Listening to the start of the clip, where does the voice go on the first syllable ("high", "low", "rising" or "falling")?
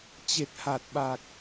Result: low